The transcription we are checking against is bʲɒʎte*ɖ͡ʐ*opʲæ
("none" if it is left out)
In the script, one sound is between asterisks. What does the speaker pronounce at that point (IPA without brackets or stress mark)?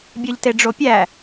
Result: ɖ͡ʐ